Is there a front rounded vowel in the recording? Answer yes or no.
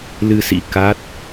no